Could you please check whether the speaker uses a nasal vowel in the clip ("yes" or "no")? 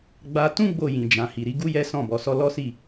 yes